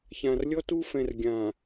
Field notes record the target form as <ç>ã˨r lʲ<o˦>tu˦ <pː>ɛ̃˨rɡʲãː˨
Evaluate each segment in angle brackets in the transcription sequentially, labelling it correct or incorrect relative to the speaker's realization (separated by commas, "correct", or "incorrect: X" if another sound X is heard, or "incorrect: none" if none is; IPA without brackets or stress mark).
correct, incorrect: ɔ˦, incorrect: f